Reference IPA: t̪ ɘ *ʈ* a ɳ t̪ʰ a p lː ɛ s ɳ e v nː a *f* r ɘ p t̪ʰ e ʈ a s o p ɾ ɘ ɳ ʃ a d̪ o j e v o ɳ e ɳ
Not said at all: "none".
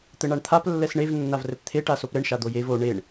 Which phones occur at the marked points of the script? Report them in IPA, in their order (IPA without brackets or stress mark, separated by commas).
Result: ɳ, v